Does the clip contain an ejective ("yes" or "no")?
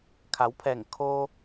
no